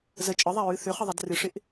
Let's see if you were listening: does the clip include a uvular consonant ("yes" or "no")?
yes